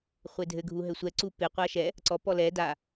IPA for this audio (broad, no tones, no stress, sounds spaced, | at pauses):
χʷ e dʱ ɘ ɡʱ u ɦ ɘ sʷ ɛ ǀ u p e qʷ a ʃ ɛ | ǀ ɔ p ɔ l ɛ d a